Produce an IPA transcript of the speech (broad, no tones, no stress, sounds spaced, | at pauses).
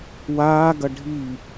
w aː ɡ ɐ ɖʱ i